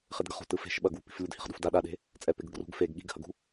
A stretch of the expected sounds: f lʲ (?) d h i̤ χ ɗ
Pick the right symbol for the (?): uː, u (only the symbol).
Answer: u